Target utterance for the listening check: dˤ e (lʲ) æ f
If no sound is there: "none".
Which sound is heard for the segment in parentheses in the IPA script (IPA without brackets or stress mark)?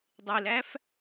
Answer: l